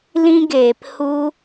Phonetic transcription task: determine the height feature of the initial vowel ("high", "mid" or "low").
high